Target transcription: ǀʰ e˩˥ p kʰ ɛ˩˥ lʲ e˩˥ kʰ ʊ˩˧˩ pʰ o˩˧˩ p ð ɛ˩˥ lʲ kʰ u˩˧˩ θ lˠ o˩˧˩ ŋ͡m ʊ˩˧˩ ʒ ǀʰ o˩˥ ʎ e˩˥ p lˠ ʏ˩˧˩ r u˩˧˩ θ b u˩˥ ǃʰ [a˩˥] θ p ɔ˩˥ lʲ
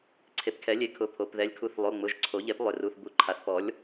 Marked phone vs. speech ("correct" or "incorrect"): correct